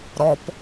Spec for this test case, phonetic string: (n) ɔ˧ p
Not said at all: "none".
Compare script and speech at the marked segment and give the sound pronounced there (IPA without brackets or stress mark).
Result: ɾ